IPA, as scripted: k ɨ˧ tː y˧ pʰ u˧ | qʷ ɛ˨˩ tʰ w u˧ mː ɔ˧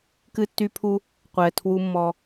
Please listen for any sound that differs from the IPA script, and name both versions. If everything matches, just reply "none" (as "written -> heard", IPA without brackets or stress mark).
none